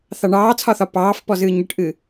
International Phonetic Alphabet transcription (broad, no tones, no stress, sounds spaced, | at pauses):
θ ɑ ɳ ɑː t͡sʰ ɒ θ ɒ p ɑː f p ɔ z ɨː ɲ ɨ ʈ ʔ ɨ